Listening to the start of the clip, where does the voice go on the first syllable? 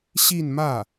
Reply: falling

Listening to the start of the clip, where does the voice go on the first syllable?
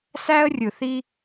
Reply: high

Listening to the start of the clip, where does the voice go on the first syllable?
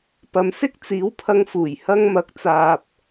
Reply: low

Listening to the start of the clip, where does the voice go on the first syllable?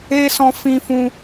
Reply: high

